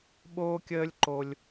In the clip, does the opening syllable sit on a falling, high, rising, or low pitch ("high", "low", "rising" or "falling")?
high